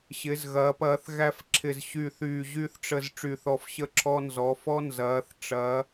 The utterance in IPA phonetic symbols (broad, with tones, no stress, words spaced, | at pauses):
ɕɪ˩˧zɣɐː˩˧p ɐː˩˧θ ɣæ˧fǁʰɪ˨˩z ɕyː˨˩θyː˨˩ ʑy˧θʈ͡ʂə˨˩z ʈ͡ʂy˨˩θɔ˨˩f ɕə˧ǁʰɔ˧nzɔ˩˧ fɔ˧ nzɐː˩˧θʈ͡ʂɐ˩˧